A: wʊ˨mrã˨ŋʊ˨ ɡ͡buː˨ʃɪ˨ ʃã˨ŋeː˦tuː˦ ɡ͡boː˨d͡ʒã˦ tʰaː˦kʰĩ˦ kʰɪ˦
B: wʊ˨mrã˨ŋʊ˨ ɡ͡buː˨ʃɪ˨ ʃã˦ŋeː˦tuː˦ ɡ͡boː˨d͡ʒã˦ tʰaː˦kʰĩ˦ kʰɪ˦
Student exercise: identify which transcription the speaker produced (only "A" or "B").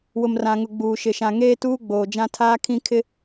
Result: A